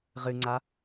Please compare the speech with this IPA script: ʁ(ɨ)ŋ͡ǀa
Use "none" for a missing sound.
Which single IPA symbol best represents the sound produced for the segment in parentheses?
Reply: ɨ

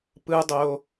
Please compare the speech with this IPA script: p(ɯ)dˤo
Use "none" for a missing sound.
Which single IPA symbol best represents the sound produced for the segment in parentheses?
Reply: ɯ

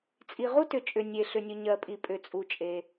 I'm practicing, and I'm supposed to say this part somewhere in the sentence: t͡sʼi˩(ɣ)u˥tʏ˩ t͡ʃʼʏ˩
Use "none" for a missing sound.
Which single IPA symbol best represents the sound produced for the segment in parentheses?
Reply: ʁ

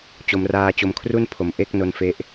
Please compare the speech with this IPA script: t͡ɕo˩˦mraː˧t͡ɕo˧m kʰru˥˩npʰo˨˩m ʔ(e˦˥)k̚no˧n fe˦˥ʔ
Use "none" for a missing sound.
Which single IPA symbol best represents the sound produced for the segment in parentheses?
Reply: e˥˩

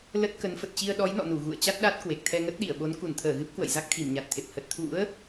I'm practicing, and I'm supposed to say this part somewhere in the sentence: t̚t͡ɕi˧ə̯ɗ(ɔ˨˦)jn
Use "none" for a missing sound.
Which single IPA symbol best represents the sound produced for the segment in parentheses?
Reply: ɔ˨˦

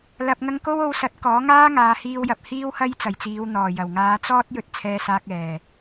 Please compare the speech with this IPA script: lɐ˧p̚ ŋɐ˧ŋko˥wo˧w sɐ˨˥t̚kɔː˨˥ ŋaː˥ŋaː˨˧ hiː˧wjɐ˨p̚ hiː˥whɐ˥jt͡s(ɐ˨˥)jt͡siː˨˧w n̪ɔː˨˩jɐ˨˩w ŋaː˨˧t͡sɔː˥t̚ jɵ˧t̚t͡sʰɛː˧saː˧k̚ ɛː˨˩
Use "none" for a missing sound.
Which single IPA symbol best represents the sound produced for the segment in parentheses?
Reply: ɐ˨˩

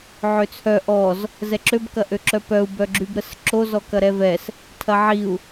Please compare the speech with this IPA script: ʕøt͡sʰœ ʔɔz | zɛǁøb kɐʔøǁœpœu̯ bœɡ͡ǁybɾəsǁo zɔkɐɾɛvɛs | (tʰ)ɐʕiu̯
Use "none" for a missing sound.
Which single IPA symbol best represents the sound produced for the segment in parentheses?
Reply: tʰ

